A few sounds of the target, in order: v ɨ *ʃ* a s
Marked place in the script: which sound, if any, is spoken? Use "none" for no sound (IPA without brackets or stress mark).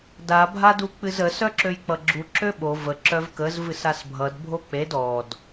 s